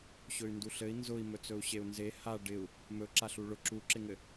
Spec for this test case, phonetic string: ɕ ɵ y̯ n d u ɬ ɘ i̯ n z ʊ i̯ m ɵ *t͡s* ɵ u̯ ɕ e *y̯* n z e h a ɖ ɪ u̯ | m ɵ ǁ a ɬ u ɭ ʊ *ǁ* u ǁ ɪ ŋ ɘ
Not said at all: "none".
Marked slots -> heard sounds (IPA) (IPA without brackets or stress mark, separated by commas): t͡s, u̯, ǁ